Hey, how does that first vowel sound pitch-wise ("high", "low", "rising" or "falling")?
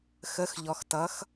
rising